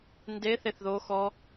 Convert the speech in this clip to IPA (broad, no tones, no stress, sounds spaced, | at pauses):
n d e θ e θ ð o x ɔ